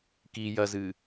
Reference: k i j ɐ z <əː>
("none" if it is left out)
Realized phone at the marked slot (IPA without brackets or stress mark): ɨː